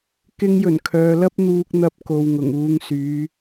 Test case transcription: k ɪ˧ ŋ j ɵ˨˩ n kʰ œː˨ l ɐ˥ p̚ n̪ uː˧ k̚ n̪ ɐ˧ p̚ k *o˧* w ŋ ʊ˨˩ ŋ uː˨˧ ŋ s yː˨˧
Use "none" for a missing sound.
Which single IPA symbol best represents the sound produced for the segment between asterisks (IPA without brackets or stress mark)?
o˨